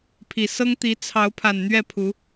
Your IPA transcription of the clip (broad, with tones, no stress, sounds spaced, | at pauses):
pʰ i˨˩ s ɤ˦ ŋ t̪ i˨˦ t͡sʰ ɑ˨˦ ʊ̯ pʰ a˨˩ n n̪ ɥ ɛ˥˨ pʰ u˨˦